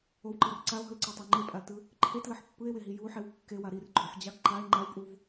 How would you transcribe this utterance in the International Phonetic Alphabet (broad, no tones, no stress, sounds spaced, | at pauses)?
o w ǃ ʌ r ǀ a o̯ ɦ ɯ l ǀ a tˤ a ŋ͡ǃ e pʼ a l t ɯ | ǃʰ e t l ʌ ħ pː ɯ e̯ w e ɦ i j u ħ e w kː e w a ɾ i r ɡ͡ǃ o ħ d͡ʑ a ɡ ǃ a e̯ ŋ͡ǃ a w pʼ u v